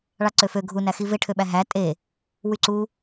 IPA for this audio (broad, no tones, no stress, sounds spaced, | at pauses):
ɭ ɑ ǀ ø f ø ɡʱ u n æ x i v e ʈʰ ø ɓ æ ɦ æ tʼ e | w y ǀ u